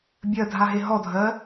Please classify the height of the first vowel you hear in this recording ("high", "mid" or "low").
mid